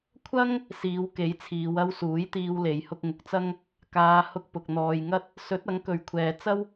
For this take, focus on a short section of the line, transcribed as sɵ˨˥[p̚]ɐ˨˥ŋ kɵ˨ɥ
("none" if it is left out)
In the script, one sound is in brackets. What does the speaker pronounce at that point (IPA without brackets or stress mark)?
t̚